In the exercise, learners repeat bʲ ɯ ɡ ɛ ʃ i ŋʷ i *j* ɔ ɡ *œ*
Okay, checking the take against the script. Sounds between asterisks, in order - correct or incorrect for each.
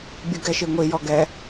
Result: correct, incorrect: ɛ

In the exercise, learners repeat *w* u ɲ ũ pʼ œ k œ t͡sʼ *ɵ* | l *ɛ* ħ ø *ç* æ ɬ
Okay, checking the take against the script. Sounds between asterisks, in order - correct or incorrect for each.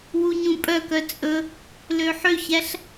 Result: correct, correct, incorrect: ø, correct

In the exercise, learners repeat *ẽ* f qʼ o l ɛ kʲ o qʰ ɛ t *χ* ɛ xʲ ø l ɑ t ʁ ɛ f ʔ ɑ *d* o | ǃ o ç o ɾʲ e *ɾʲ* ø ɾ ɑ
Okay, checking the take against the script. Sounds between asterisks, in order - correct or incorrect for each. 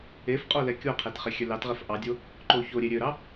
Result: incorrect: e, correct, incorrect: dʲ, correct

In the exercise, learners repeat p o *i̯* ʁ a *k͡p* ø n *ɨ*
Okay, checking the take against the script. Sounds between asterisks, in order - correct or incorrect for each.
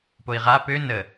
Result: correct, incorrect: p, incorrect: ə

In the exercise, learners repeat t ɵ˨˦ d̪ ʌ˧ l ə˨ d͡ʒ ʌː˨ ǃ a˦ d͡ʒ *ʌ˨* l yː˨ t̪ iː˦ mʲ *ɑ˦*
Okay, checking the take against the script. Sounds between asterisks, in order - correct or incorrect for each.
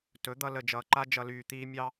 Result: incorrect: ʌ˧, incorrect: ɑ˧

